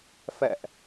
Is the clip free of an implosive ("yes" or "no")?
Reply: yes